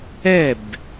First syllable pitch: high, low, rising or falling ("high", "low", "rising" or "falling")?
falling